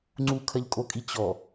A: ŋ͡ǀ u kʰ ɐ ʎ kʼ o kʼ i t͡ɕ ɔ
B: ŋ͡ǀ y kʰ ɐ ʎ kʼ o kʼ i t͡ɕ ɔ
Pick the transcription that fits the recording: A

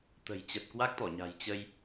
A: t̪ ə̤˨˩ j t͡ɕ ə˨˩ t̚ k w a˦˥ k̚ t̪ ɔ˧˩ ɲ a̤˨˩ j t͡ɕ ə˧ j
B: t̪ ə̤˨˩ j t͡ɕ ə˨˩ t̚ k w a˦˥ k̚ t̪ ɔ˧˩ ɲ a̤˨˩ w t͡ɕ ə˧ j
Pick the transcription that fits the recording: A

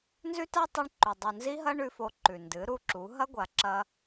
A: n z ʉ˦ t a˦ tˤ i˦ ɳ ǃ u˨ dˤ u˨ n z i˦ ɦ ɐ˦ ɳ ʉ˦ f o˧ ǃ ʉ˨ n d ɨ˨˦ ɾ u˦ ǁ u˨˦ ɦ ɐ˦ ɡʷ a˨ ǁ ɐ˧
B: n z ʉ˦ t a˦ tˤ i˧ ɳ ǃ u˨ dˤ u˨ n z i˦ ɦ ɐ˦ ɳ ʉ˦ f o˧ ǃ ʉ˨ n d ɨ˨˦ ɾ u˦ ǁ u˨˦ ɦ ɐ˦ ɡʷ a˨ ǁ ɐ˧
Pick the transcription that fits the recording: A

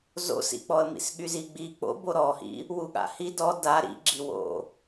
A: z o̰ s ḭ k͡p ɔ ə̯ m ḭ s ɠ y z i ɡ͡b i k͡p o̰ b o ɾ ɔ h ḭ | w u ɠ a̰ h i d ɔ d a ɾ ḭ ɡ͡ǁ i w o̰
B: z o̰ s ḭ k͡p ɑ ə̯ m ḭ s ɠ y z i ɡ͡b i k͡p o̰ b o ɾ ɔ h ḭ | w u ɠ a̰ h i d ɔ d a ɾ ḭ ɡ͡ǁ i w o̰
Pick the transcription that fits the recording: A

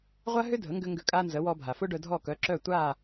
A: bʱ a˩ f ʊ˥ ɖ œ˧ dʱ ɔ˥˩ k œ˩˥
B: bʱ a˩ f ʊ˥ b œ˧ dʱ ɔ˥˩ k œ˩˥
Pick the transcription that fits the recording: A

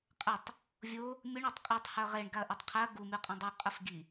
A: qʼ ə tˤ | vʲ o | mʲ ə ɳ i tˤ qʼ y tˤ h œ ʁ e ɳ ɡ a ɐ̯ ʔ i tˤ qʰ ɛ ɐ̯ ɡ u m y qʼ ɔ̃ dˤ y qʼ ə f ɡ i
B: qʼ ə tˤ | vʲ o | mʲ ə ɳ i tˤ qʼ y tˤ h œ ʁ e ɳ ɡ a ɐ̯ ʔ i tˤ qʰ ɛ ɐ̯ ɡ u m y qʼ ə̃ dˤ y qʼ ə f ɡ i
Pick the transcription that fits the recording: B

